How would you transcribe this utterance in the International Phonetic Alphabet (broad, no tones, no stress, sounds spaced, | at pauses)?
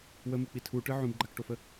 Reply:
w ə m ɨ k͡p i tʰ u ʈ ɨ ʕ ũ b ɡ͡ǃ a k ʈ o f ə